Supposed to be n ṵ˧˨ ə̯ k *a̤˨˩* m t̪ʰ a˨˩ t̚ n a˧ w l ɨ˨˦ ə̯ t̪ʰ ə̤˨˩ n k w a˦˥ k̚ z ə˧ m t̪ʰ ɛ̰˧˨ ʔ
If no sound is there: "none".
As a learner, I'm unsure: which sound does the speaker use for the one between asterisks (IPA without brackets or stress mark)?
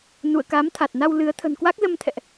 a˨˦